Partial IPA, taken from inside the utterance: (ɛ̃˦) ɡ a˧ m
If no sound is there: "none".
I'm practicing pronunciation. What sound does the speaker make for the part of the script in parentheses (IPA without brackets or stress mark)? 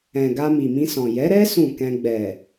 ɛ̃˨